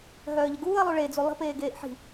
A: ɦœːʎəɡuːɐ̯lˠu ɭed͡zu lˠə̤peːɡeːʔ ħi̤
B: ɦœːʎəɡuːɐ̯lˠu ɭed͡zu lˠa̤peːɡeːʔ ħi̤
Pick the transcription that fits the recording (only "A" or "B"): A